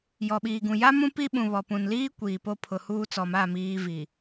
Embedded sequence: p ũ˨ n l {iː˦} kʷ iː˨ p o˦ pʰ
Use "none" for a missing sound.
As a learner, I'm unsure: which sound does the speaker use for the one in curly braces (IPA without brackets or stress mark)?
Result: iː˦